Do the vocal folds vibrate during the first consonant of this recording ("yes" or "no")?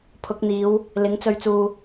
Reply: no